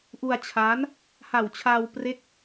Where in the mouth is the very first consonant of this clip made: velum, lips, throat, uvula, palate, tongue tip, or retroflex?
throat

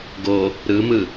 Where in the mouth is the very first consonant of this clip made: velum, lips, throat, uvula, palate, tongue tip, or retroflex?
velum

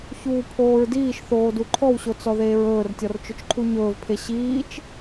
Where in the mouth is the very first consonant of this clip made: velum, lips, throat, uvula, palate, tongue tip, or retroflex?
palate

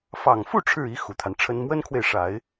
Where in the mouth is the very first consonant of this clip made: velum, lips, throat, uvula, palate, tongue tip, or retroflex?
lips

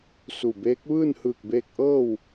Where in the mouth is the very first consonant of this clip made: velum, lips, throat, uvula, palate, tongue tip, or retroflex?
tongue tip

